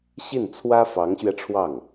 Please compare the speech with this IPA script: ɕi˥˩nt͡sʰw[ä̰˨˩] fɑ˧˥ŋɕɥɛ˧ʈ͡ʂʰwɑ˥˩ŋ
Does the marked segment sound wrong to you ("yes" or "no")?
yes